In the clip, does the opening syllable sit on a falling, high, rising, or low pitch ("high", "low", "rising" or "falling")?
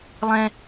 high